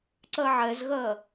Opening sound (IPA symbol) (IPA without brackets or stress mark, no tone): ǀ